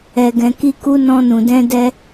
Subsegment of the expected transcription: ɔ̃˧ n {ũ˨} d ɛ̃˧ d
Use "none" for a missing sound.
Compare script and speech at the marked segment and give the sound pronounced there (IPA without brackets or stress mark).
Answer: ũ˨